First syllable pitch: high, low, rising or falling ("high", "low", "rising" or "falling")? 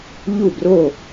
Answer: falling